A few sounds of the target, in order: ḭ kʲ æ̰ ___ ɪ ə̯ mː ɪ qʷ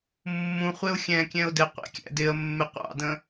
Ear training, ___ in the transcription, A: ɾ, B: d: B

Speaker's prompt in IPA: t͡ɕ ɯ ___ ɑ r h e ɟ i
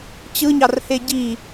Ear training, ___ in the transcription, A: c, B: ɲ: B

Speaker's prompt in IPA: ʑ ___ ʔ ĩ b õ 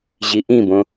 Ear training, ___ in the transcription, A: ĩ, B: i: B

